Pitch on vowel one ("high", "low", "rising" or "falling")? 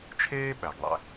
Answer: high